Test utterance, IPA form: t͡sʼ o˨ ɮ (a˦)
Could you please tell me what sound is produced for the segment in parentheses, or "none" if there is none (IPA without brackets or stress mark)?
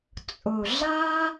a˦